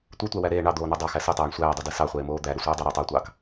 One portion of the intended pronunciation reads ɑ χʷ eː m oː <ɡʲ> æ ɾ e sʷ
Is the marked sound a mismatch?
yes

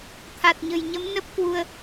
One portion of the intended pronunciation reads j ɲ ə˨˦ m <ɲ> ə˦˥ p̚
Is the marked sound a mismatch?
yes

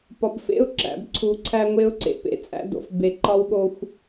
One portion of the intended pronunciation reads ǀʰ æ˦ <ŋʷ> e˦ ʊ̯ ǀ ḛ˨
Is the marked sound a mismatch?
no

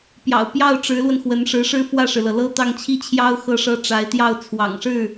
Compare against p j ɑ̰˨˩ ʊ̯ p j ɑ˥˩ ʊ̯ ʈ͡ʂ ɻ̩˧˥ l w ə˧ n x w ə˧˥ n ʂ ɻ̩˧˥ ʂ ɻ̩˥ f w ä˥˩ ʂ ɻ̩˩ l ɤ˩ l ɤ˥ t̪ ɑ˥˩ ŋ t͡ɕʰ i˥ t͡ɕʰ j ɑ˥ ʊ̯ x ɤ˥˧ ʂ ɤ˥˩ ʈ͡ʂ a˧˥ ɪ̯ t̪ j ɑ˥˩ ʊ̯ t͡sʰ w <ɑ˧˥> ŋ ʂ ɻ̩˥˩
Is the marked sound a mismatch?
yes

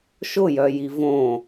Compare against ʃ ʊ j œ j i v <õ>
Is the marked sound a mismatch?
no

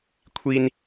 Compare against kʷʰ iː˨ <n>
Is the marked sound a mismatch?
no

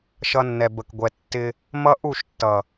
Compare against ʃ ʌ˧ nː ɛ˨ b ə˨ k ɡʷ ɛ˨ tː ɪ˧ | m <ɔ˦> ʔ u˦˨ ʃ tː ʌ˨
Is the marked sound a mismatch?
yes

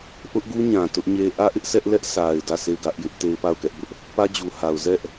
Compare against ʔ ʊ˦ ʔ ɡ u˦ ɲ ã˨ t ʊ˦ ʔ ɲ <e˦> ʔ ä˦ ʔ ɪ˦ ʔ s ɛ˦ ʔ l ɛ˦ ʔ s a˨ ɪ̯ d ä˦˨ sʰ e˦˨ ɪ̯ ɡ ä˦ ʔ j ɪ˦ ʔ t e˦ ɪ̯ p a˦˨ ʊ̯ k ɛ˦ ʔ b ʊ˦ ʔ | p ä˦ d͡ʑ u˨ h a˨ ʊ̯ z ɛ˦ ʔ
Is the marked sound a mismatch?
no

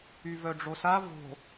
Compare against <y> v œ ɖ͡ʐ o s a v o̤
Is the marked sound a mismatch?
no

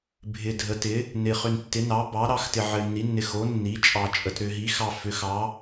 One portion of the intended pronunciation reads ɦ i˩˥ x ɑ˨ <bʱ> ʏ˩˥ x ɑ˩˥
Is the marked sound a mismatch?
yes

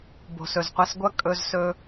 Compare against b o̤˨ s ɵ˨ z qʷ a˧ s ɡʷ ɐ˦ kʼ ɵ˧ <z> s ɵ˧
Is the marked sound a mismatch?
no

